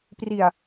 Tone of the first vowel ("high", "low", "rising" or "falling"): low